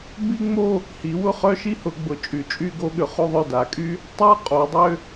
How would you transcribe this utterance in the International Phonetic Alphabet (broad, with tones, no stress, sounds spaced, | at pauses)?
b i˥ ŋ͡m o˥˧ | h i˩˧ w ʊ˥˩ χ œ˥˧ ʃ i˥ h ʊ˩˧ ɡ͡b ʊ˩˧ t͡ʃʼ y˩˧ t͡ʃʼ y˥˧ ɡ o˥ ɠ ʏ˩˧ χ o˥˧ ðˤ œ˥˩ d a˩˧ kʼ y˥ | tˤ a˥ qʼ o˩˧ dˤ ʏ˥˧